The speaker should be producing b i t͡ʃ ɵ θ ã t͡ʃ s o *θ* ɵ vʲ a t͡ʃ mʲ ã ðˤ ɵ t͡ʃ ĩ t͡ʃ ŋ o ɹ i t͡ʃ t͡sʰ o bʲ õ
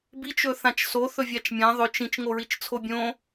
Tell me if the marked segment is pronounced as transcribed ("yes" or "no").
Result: yes